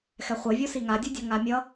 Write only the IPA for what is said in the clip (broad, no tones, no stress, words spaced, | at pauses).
xɛχʷevʲo siŋadʲudʲʌ ŋamʲʌ